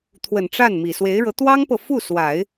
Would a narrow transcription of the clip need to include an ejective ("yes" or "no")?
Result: no